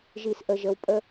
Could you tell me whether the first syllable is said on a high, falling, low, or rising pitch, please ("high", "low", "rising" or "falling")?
low